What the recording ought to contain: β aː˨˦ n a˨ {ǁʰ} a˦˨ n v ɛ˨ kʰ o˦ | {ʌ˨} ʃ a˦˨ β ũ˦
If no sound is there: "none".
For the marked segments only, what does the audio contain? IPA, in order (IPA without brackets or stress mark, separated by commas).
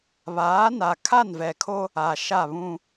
kʰ, a˨